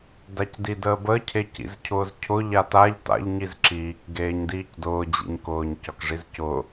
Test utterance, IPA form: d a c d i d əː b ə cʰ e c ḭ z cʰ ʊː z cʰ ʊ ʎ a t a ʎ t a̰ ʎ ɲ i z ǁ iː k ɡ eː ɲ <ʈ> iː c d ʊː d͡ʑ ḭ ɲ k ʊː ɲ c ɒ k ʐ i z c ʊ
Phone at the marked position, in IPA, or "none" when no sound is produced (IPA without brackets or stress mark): d